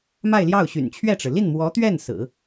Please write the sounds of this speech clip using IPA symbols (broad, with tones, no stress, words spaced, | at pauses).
ma˥˧ɪ̯ljɑ˥˩ʊ̯ ɕy̰˨˩nt͡ɕʰɥɛ˥˩ʈ͡ʂɻ̩˩ li˥˩nmwɔ˧˥t̪ɥɛ˥˩n sɹ̩˨˩˦